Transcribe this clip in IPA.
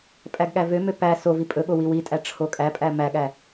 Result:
pʼ æ ɡ ɠ æ v ø m ø p æ s o v i pʼ ɵ ɠ o w i w i tʼ æ ʈ͡ʂʰ o kʼ æ pʼ æ m æ ɠ æ

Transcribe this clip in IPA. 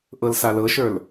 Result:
ʔ ɤ l s a l ɤ ʃ ə˞ l

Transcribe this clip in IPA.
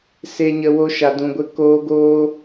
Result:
s e˧ ɲ ə˧ w o˦ ʃ a˧ d ũ˧ ɡʷ ə˦ k oː˦ ɡ oː˦

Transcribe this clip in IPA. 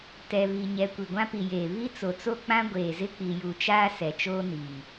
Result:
t ɛ˨ β i˨ ɲ ɛ˨ kʷ i˨ ɡʷ ã˦ p i˨ j eː˨ β i˦ t͡s o˨ t͡s o˦ k͡p ã˦ ɡʷ eː˨ z ɪ˦ k͡p i˨ j u˨ t͡ʃ aː˦ s ɛ˨ t͡ʃ oː˦ n iː˨

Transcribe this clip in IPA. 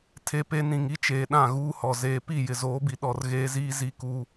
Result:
tʰ e˦ p e˦ n ĩ˨ ŋ i˦ t͡ʃ eː˨ ɗ ã˦˨ ɣ uː˦ h ɔ˨ z eː˦ p i˦˨ j ɪ˨ z oː˨˦ b i˨ ɗ ɔ˨ r ɣ eː˦ z iː˦ z i˦ k uː˦

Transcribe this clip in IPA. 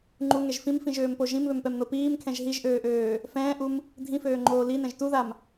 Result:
ŋ͡ǃ u ŋ ɛ ʒ f ĩ m f ĩ ʒ øː m p o ʒ ĩ m β ø m p ɛ m n o p iː m kʰ ɛ̃ ʒ ɦ i ʒ ʔ øː ʔ øː | f ɛ̃ː ʔ u m | dʱ ĩ f øː ŋ͡ǃ oː l i n ɛ̃ ʒ t u ð a m

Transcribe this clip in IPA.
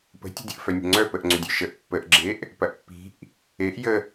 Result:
p ə̤ tʲ ə̤ dʲ ə ʔ f œ nʲ ə̤ ŋ͡ǀ œ p ə ʔ ŋ͡ǀ ʏ dʲ œ ʃ ə ʔ pː ə ʔ ɡ͡ǁ e ʔ | p ɐ ʔ pː i̤ ʔ | e ʔ j ə

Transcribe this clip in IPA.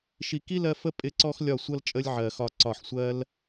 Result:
ʃ i˨ k i˦ l ɜ˧ f ə˦ pʼ ɪ˧ ǀ ɔ˦ x lʲ ɒ˦˨ sʷ ʌ˦ l t͡ʃʼ ə˦ lʲ ʕ ɜ˨ x ɒ˧ ǀ ɒ˦˨ ħ sʷ ɜ˦ l

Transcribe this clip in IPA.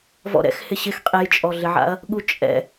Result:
v ɔ̰ ɾ ɛ̰ x h ɪ ɕ ɪ x qʼ e j t͡ʃʼ ɔ ɮ ɪ ʕ a̰ ɐ̯ | ɠ u t͡ʃʼ ɛ̰

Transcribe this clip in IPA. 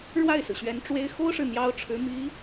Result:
ɻ w a˥˩ ɪ̯ s ɹ̩˩ ɕ ɥ ɛ˧˥ n ʈ͡ʂ w e˥ ɪ̯ x o˥ ʊ̯ ʂ ɻ̩˨ n̪ j ɑ˥ ʊ̯ ʈ͡ʂʰ ɻ̩˧˥ m i˧˥

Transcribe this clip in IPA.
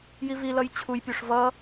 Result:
j i v i l ʌ j t͡ɕʰ u j pʲ o ʂ v ʌ

